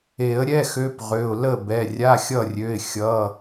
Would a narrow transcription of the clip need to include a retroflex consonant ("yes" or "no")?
no